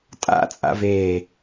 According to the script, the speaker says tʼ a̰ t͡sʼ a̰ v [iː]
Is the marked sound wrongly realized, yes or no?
yes